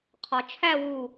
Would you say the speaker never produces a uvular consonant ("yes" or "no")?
no